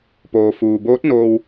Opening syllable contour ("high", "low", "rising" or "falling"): low